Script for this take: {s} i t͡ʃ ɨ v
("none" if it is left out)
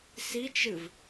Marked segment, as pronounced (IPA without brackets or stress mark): s